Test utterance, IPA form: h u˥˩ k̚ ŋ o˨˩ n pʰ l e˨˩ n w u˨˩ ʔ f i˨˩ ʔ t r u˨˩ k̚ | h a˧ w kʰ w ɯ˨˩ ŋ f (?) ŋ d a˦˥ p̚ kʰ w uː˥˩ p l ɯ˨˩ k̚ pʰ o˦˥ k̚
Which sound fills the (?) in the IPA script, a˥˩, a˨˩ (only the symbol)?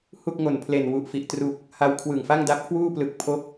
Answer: a˥˩